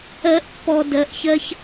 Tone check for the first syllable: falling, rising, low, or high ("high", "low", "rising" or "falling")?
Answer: rising